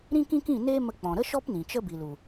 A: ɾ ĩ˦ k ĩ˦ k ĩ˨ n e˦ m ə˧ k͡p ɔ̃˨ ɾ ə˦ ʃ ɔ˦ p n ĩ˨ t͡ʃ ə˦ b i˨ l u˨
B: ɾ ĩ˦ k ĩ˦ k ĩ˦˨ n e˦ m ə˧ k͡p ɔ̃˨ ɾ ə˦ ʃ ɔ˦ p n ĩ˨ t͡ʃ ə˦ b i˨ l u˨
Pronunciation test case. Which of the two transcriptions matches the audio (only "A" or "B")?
B